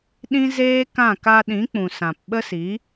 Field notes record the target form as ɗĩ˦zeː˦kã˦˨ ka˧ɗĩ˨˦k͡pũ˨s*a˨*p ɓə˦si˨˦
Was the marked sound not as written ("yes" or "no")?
yes